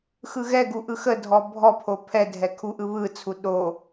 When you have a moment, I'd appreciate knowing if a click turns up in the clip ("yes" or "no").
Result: no